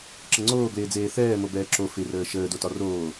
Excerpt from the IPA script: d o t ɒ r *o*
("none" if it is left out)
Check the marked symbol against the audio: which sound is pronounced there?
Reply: oː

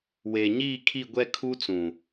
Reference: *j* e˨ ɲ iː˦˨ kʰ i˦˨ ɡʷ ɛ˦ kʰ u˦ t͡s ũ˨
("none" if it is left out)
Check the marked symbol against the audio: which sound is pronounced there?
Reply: w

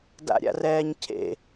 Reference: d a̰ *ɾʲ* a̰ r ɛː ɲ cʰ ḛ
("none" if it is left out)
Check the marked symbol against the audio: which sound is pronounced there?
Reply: ɾʲ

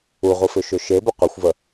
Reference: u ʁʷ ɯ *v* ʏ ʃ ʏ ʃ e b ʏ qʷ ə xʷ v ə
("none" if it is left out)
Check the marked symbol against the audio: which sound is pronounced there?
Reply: f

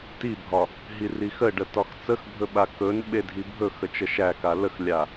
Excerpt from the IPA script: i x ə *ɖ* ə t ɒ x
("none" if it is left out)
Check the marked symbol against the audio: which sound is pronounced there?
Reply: ɖ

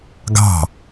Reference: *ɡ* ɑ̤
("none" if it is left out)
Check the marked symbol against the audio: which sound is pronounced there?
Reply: ɡ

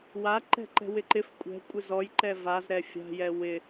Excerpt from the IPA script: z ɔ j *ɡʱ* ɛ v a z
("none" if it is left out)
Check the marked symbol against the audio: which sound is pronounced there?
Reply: ǃ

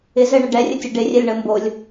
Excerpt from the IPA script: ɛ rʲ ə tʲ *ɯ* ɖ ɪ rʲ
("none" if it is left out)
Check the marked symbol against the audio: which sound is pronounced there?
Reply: ə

